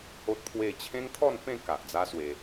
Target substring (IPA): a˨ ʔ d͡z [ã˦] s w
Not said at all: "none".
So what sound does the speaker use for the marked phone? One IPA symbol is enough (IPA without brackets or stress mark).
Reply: a˦